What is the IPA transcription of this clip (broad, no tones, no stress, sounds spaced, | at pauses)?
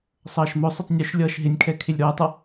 sˤ ʌː ʃ m ʊ sˤ ɪ tˤ nʲ ʊ ʃ lʲ ʌː ʃ ɦ ɪ nʲ kʰ ɛ kʰ ɪ lʲ ɾ ʊː tˤ ʌ